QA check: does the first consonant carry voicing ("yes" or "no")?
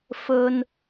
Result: no